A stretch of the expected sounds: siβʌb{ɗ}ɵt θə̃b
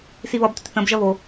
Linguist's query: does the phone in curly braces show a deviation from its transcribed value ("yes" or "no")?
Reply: yes